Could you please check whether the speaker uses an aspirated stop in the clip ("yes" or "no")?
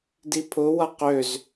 yes